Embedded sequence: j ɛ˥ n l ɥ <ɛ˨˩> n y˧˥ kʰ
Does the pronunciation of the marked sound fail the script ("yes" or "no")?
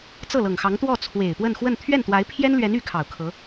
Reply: yes